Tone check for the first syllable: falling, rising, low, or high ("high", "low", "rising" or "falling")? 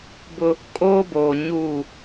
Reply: high